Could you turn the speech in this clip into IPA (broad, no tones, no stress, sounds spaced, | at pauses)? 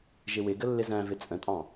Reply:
ʒ ɪ w ɪ ɡ ə lː ɪ z æ̃ v ɪ t͡sʼ ə̃ tʼ ɑ̃